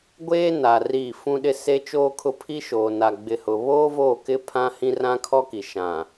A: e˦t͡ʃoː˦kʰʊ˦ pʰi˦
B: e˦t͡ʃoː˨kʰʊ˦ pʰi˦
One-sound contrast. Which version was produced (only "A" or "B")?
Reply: A